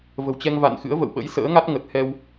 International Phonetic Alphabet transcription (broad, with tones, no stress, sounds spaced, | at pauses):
v ə̤˨˩ w t͡ɕ ɛ˧ ŋ v a̰˧˨ n x ɨ̰˧˥ ə̯ v ə̰˧˨ w ɓ ə̰˧˥ j s ə̰ː˧˥ ŋ a˦˥ t̚ ŋ ə˨˩ t̚ h ɛ˧ w